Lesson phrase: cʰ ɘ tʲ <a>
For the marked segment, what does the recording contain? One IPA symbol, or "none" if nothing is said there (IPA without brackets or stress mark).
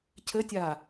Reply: a